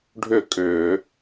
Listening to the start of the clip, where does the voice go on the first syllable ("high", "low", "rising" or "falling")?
falling